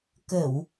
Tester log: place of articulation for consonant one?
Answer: velar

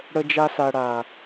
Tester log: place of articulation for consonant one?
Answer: retroflex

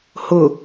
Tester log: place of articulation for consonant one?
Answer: glottal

